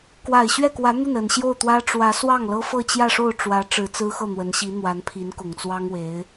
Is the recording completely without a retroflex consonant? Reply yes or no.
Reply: no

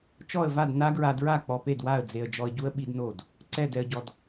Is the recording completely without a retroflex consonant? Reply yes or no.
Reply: yes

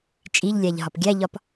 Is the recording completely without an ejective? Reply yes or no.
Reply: no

